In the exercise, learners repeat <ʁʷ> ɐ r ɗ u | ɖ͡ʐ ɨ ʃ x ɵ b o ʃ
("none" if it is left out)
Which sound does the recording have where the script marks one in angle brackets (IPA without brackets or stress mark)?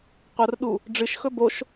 qʷ